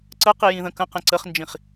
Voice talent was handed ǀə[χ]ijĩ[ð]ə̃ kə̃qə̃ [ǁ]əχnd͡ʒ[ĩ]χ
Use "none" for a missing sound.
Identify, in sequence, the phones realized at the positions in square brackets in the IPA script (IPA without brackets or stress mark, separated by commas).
q, ð, ǀ, ĩ